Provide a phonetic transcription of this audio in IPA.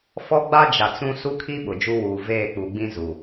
f ɔ˦ ɡ͡b a˦ d͡ʒ a˨ t͡s ũ˦ s u˦ kʰ i˦ ɓ ʊ˨ d͡ʒ u˦ w uː˨ v eː˦˨ k͡p u˨ ɡ͡b ĩ˦ z u˨

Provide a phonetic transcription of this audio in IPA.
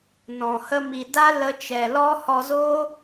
n ɔ̃˨ h ə˧ m i˨ d a˦ l ə˧ t͡ʃ ɛ˨ l ɔ˦ h ɔ˧ z oː˦

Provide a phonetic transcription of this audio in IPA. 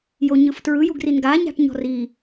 j o ɲ ɯ f t ɹ ɯ j u ɡ r i n ɡ a ɲ a̤ ʈ ɲ ɔ̤ r i

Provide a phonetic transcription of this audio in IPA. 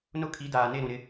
n ʊ˦˨ kʰ i˨˦ d aː˨ n e˦˨ ɾ ũ˨ ɾ ɪ˦

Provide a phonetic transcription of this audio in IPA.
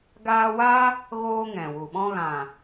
ɡ aː˧ w aː˦ | ɣ oː˧ ŋ ɛ̃˨ w u˨ ɓ ɔ̃˧ ɣ ã˨

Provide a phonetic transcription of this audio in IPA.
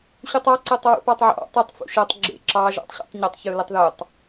ɕ u tˤ ɑ ǀ ɤ tˤ ɹ ṵ p ɑ tˤ ʕ ɑ̰ tˤ e tˤ f ṵ ʃ ɤ tˤ ɡ͡ǁ ḛ ǁ ɑ ʒ ɑ̰ tˤ ɕ ṵ tˤ ɲ ə tˤ ç ɯ l ə tˤ ð o tˤ

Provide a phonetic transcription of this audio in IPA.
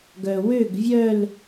ɡ œ w ø ɡ vʲ œ l

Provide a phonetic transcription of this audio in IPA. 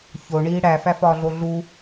ç o ɳ iː ɽ æ f æ f ɒː ɮ o ɮ u

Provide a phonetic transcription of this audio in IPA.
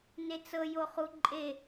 n e t͡s ɤ j o χ u ǃʼ e

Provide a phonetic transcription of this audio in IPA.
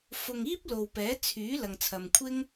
f ʊ˧ ŋ iː˥ p̚ l o˨ w p ɛː˨˥ t͡sʰ yː˨˥ l ɐ˨ ŋ t͡sʰ ɐ˨ m kʷʰ ɪ˥ ŋ

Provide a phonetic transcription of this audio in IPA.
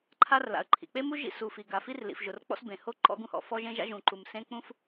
ǃʰ a˦ r l a̰˩ ə̯ ǃʰ ḭ˩ k͡p e˦ m u˦ ʒ ḭ˦ s u˩ f i˩ ɡ a˩ f i˦ r l ḭ˩ f ʒ ʊ˩ r k͡p ɔ̰˦ s b ẽ˩ h o˦ ǃ ɔ̰˦ ɡ ũ˦ h ɔ̰˩ f ɔ˦ ʒ ẽ˦ ʒ a̰˦ ʒ ũ˩ ǃ u˩ m s ẽ˦ k͡p ũ˦ f

